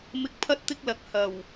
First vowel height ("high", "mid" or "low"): high